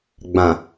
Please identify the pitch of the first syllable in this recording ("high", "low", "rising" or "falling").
low